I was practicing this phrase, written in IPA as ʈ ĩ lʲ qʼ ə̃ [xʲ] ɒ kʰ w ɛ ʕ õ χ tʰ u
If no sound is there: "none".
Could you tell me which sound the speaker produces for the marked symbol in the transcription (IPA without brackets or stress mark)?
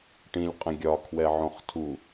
ɡʲ